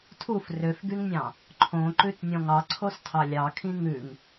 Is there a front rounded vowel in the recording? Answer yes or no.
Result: yes